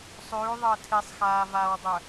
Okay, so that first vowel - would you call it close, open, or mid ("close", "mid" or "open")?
close